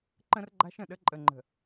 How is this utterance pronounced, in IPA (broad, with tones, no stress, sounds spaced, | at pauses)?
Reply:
ǃ ə̃˦ r ɡ͡ǃ a̤˦ ʃ ə̃˨ ɗ ə˦ ǃʼ ə˨ ŋ͡ǃ ə̤˨